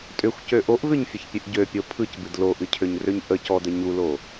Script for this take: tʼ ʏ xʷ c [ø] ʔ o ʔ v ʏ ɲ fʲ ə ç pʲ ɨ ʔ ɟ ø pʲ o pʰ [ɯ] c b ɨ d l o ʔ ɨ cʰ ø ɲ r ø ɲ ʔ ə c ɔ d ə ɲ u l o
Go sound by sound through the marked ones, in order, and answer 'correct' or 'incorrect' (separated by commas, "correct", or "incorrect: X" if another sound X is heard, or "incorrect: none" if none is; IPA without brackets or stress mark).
correct, correct